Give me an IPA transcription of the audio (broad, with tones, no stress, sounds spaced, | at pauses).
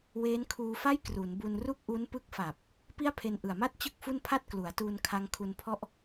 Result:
w eː˦˥ n kʰ uː˧ f a˥˩ j k r u˩˦ n b u˧ n r u˥˩ k̚ ʔ u˦˥ n p ɯ˦˥ k̚ f a˨˩ p̚ | p i˥˩ a̯ pʰ e˧ n ʔ ɯ˨˩ a̯ m a˥˩ t̚ t͡ɕ ɯ˥˩ k̚ f u˥˩ n pʰ a˥˩ t̚ k l u˩˦ a̯ t uː˧ n kʰ a˧ ŋ kʰ u˧ n pʰ ɔ˥˩ ʔ